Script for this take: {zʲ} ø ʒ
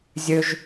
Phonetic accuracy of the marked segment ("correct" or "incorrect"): correct